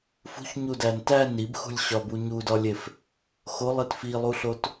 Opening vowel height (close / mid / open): close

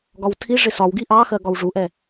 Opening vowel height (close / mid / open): open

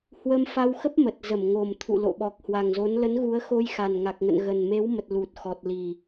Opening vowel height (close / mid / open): mid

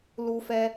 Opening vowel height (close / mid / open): close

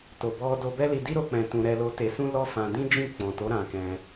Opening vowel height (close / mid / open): mid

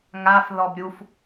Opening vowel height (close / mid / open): open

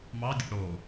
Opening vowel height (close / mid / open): open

